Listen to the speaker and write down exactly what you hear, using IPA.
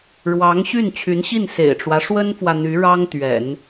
ɻ w ɑ˧˥ ŋ ɕ y˥˩ n t͡ɕʰ y˧˥ n ɕ i˥˩ n s ḛ˨˩ ɪ̯ ʈ͡ʂ w ä˦ ʂ w ə˥ n f w ä˨ n̪ y˧˥ ɻ ɑ˥ ŋ t̪ ɥ ɛ̰˨˩˦ n

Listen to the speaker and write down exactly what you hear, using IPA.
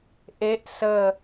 ʔ e ʔ s ə

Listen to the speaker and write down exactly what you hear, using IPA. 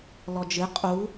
l ɔ d͡ʒ ɨ qʼ u

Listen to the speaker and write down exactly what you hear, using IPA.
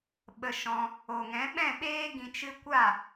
ɓ ə˧ ʃ ɔ̃˧ | o˨ ŋ ɛ̃˨˦ ɓ ɛ̃˦˨ ɓ eː˦ ɡ ĩ˧ t͡ʃ ɨ˦ kʷ a˦˨

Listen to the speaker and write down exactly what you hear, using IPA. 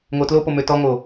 ŋ o t l o p o m ø t ɔ ŋ o

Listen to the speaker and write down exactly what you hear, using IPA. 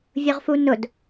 vʲ ʊ ʁ f u n ʊ d

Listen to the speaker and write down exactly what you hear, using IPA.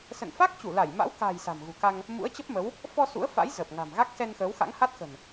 s ə̰˧˨ n f a˦˥ k̚ t͡ɕ u˧˩ l a˧˩ j m a̰˧˥ w k a̤˨˩ j s a̤˨˩ m ɣ ṳ˨˩ k a˧ ŋ | m ṵ˧˥ ə̯ t͡ɕ ə˦˥ p̚ m ə˨˦ w | f ɔ˧ s ṵ˧˥ ə̯ f a̰˧˥ j z ə˨˩ p̚ ŋ a̤˨˩ m ɣ a˦˥ k̚ s ɛ˧ n x əː˨˦ w x a̰˧˥ ŋ h a˦˥ t̚ x ə̤˨˩ n

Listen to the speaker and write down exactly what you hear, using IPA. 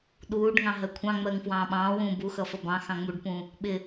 ɗ uː ɖ ŋ ɑ̃ ɦ ɜ kʷʰ ɑ̃ ŋ͡m ɜ ŋ f w ɑ̃ː ɓ ɑ̃ː w ũː b u x ʌ f ʌ b ɑ̃ x ɑ̃ ŋ͡m u ɖ p ũ | ɓ ɪ

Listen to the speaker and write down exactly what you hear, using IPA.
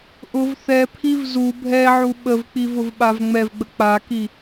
ʔ ʊ v θ ɛ pʰ i v z u bʱ ɛ ʕ u ɓ ə v k͡p i v ʊ v ɓ a v ŋ͡m ɛ v ɡ͡b ə k͡p a k i

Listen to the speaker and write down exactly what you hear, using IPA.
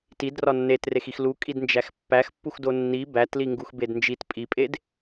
t i d r ɒ nː e t r e x i x l u kʼ i d n d͡ʒ æ x pː æ x pː u x d o nː i b æ t l i ŋ ɡ u x b e d n d͡ʒ i t pʼ i pʼ e d

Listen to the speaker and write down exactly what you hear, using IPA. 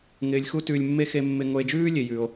ŋ ɪː˧ lʲ x u˥ t ʉː˧ lʲ mː e˥ x e˧ mː ɪ˧ ŋ o˧ e̯ d͡ʒ ʉː˥ lʲ e˧ j ʉː˧ o̯

